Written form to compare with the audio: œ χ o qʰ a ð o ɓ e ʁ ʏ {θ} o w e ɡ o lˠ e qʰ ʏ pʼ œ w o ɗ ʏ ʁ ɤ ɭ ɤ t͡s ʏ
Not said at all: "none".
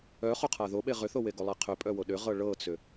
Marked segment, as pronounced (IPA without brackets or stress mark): θ